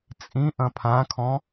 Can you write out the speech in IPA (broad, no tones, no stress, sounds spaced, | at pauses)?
t͡sʼ ĩ ʔ ɐ̃ pʰ ã kʰ ɔ̃